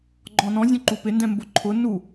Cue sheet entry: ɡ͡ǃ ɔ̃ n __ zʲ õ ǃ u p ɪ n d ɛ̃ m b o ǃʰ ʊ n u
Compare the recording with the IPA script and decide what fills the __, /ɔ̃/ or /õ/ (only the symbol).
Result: ɔ̃